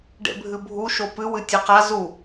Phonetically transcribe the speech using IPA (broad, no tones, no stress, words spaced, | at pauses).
ɖḛbʱɨbʱu ʃopɨ wɨtʲeqa zu